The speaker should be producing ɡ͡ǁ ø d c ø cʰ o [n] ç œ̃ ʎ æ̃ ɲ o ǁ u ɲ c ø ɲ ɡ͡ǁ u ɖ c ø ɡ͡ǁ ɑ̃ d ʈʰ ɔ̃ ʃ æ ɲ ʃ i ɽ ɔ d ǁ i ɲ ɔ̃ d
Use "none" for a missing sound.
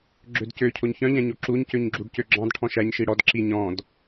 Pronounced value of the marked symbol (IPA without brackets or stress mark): ɲ